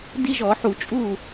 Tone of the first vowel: high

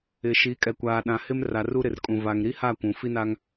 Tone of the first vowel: low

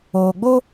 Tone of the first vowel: low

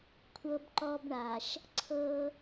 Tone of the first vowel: high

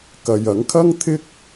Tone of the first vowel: low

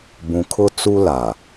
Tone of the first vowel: low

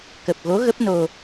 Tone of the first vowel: low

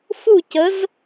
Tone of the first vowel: falling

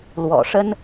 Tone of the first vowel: low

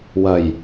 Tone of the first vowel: low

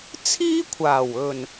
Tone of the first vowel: high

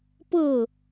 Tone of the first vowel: falling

